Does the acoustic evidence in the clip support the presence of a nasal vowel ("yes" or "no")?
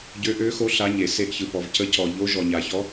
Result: no